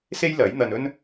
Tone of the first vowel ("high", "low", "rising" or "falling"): high